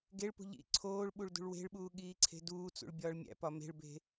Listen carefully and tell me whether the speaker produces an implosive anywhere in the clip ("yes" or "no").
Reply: yes